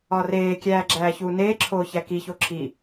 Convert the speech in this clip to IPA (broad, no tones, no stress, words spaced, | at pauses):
ɒreːkʲæː ɡ͡ǁæːçuːneːǁʰoː çækiço ǁʰi